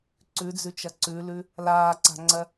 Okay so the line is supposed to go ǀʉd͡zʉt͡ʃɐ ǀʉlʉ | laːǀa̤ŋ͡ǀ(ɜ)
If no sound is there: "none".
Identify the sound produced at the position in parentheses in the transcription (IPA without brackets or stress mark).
ɜ